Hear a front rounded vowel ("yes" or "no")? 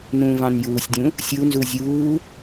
no